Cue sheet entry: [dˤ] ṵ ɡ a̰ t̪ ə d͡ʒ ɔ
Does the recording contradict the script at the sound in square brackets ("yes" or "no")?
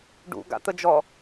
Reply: yes